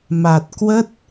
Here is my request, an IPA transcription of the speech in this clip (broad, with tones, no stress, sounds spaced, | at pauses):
m a˨˩ t̚ k w ə˦˥ t̚